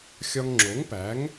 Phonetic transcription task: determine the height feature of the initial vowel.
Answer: low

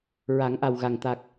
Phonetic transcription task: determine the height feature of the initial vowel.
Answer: low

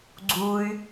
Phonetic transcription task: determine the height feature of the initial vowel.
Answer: high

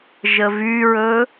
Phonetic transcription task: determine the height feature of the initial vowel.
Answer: mid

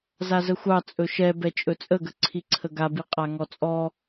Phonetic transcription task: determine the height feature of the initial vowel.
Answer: low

